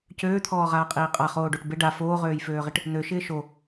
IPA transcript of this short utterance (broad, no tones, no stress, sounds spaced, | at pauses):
c øː t̪ʰ ɔː ʁ aː qʼ iː qʼ a χ oː ɖ o ʈ b ɪ ɖ a f oː ʁ øː j f øː ʁ ɪ ʈ | n̪ ø ʃ ɪː ʃ o